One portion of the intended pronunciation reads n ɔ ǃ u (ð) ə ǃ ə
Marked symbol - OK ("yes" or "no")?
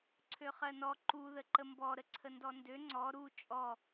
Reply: yes